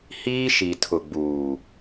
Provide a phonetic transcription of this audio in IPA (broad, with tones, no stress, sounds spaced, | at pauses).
h iː˦ ʃ i˨ tʰ ʊ˨ ɡ͡b uː˨